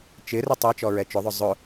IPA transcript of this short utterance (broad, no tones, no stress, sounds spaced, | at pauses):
t͡ʃ ɪ r ɪ tˤ e t͡ʃ ɔ ɹ ɛ t͡ʃ ʊ ðˤ ʊ zˤ ʊ